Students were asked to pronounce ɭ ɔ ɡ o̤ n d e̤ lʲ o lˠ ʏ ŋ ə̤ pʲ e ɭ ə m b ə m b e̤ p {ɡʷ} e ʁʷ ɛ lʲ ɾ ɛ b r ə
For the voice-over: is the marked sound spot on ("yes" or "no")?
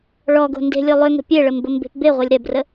no